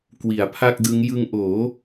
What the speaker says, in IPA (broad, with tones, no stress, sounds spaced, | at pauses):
k w i˩˦ a̯ pʰ a˥˩ k̚ d ɯ˦˥ ŋ j ɯ˧ ŋ ʔ oː˩˦